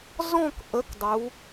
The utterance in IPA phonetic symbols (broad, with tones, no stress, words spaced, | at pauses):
zɔ̃˥˧kʔə˨˥k dˤu˩˧